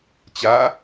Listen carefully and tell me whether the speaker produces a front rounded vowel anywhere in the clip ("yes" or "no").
no